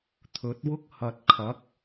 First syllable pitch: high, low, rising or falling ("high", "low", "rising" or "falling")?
rising